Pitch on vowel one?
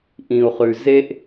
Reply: low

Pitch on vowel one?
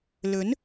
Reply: rising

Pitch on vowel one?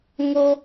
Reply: high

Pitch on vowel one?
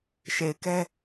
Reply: low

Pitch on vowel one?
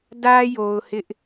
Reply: high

